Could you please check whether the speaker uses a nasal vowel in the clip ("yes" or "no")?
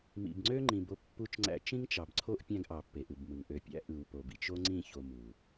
yes